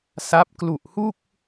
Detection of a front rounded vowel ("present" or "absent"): absent